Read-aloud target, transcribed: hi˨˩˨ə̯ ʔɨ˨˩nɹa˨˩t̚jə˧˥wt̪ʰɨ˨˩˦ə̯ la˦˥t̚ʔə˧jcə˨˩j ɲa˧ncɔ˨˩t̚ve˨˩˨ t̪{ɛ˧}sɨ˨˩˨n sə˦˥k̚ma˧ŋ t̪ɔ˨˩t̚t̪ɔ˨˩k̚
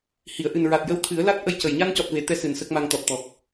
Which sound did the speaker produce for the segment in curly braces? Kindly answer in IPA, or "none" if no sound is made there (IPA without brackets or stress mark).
ɛ˧